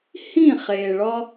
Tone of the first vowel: falling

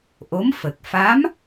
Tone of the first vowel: rising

